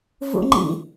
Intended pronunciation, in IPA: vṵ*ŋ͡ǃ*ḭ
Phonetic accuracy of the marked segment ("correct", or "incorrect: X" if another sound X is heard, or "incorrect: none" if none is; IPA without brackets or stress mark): correct